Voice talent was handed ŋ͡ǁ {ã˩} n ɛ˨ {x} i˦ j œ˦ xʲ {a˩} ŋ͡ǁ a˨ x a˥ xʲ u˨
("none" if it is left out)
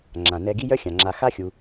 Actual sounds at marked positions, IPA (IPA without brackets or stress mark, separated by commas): ã˩, ɡ, ã˩